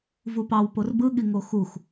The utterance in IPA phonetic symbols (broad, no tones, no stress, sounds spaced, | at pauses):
v u p ɑ w p o r b ɯ ɠ i ŋ o x u x